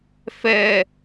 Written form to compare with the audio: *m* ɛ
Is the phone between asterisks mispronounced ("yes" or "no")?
yes